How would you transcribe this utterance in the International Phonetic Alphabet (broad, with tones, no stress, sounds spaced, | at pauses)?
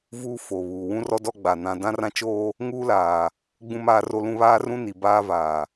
v uː˦ f oː˨ β uː˨ w ũ˦ r ɔ˦ d ɔ˦ ɡ͡b a˨ n ã˦ d ã˦ r ã˦ t͡ʃ oː˦ | ŋ uː˦ l aː˨ | ɡ͡b ũ˦ m aː˦ r o˦ l ũ˦ β aː˦ r ũ˦ n i˨ b aː˦ v aː˨